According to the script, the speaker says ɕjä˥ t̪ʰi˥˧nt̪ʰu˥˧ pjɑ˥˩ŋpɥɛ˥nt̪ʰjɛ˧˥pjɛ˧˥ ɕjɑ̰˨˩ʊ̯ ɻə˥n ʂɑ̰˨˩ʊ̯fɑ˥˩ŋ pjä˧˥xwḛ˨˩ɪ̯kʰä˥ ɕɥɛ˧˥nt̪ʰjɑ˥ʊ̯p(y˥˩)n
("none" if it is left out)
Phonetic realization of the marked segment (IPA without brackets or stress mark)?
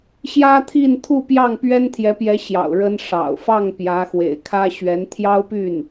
y˥˩